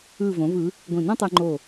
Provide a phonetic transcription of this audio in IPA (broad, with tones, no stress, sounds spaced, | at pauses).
ɯ˧˩ v õ˩˧ v ɯ˩˧ | ɡʷ ĩ˧˩ n õ˥ tˤ ɯ˧ ŋ͡ǃ o˧˩